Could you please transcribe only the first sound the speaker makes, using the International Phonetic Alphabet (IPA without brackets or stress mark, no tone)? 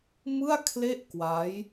m